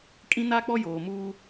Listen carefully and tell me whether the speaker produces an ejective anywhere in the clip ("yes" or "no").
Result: yes